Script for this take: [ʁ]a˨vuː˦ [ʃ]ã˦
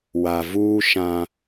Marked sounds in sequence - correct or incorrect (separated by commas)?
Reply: incorrect, correct